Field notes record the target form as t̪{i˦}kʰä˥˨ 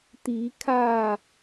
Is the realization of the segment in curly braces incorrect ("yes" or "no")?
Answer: yes